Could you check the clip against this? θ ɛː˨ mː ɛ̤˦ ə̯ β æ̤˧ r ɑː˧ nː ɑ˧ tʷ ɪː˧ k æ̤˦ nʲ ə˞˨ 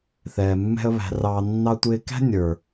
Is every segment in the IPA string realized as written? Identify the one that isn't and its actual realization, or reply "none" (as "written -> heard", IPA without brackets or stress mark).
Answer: none